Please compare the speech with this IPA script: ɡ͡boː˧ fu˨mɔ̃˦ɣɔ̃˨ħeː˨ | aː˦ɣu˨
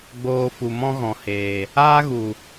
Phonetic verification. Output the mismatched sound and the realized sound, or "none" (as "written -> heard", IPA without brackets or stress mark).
ħ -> h